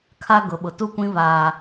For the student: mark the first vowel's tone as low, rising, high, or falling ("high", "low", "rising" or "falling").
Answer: high